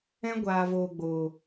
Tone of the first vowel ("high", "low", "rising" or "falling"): high